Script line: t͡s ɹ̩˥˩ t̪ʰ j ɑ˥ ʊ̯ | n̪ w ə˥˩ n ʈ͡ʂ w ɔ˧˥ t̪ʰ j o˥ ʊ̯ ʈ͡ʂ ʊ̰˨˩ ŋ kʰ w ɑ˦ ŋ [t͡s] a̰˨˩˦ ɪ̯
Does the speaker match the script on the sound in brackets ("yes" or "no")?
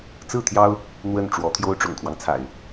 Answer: no